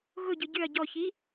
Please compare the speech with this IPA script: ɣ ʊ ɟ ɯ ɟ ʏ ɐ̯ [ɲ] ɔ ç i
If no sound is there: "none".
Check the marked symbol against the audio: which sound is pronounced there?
ɟ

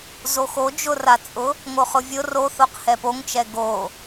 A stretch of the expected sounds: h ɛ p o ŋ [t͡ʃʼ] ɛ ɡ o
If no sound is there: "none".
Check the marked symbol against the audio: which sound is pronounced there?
t͡ʃ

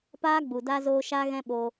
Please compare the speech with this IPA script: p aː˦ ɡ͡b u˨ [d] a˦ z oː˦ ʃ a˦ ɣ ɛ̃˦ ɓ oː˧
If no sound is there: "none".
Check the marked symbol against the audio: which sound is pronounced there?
d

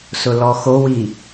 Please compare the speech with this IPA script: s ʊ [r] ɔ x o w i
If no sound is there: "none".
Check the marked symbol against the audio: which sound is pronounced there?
l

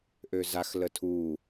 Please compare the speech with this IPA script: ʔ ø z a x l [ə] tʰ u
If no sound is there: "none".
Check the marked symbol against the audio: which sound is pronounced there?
ə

